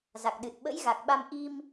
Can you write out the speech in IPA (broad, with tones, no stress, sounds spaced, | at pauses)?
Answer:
z a˨˩ k̚ ɗ ɨ˨˩ t̚ ɓ ə̰˧˥ j ɣ a˨˩ k̚ ɓ a˧ m ʔ i˧ m